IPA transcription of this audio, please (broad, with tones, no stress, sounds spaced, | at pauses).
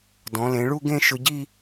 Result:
d ɔ̃˩˧ l ẽ˩˧ ɭ u˥˧ ɡ ẽ˥˧ ʃ ʊ˧ ɟ i˥˧